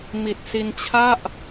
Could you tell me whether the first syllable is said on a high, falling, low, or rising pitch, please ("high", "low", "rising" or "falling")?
low